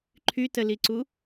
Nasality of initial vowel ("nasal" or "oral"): oral